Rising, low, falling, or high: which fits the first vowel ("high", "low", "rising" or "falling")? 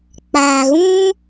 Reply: low